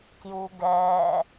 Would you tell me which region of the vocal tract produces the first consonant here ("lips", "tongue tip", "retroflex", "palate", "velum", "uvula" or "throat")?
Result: velum